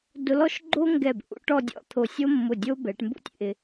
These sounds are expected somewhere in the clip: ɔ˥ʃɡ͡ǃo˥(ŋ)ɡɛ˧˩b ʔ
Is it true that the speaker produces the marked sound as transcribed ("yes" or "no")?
yes